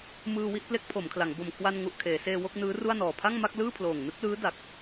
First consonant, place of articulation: labial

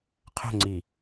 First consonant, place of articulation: uvular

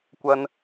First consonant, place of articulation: velar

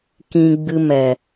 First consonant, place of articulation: velar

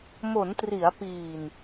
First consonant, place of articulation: labial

